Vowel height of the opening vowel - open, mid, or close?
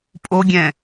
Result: mid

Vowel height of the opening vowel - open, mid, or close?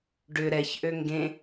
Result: close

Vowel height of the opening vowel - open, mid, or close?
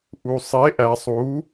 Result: close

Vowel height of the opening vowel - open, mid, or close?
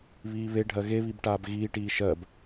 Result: close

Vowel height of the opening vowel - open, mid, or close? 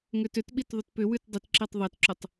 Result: close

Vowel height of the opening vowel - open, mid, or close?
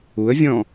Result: close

